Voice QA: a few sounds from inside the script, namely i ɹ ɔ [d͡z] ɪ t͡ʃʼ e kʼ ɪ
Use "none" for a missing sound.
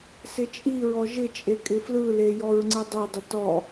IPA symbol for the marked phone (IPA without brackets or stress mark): ʒ